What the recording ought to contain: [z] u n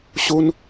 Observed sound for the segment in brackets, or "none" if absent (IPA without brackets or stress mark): ɕ